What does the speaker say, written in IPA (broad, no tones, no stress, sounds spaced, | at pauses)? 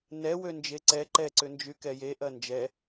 n ɛ w ø n d͡ʒ e ǀ ɛ ǃ ɛ ǀ ʏ n d͡ʒ y k ɛ j e ʔ ɐ n d͡ʒ ɛ